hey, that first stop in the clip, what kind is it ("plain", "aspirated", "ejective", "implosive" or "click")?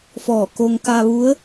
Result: plain